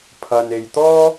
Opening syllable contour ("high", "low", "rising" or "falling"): low